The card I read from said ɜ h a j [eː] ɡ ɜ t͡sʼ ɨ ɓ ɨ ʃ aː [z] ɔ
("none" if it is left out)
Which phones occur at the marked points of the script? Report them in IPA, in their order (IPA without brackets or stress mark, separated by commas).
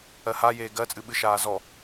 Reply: eː, z